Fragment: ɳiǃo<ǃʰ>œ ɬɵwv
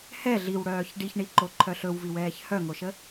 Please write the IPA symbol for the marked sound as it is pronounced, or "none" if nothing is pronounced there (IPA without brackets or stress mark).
ǃʰ